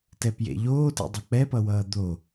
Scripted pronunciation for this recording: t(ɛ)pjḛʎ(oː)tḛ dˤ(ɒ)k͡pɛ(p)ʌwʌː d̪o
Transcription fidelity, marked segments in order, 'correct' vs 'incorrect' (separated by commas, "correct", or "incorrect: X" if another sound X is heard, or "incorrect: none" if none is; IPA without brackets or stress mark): correct, correct, incorrect: ʌ, correct